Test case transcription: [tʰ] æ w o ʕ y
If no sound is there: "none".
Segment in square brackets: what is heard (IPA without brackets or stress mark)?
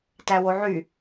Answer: t